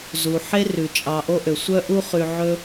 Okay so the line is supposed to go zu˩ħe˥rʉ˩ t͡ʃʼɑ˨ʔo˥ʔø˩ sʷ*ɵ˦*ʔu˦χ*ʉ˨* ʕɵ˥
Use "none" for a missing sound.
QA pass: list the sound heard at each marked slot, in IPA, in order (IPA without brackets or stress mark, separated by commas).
œ˦, ʉ˨